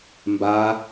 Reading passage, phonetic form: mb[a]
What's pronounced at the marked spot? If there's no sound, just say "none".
a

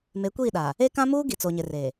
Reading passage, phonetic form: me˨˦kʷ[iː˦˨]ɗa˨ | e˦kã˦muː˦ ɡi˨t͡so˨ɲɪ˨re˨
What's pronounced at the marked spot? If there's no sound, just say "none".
iː˦˨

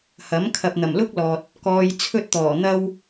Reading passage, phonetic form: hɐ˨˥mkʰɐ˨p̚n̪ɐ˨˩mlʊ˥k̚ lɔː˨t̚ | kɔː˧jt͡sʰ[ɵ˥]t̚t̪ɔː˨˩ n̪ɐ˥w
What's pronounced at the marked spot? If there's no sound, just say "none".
ɵ˥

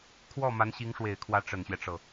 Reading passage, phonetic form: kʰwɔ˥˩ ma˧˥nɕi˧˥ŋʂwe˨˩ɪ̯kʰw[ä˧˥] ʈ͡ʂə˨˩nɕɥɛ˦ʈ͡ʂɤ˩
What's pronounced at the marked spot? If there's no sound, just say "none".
ä˧˥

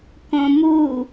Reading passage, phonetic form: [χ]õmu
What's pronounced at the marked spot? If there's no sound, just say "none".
k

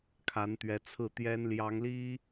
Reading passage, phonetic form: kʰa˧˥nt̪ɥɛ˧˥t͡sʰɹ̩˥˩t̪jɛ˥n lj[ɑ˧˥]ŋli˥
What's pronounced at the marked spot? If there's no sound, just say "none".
ɑ˧˥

